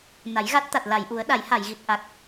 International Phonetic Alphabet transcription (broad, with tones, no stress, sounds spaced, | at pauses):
n a˨˩˦ j ɣ a˦˥ t̚ t̪ a˨˩ t̚ l a˨˩˨ j ʔ u˨˩˦ ə̯ ɗ a˨˩˦ j h a˨˩˨ j ɣ i˨˩ t̚ ʔ a˨˩ k̚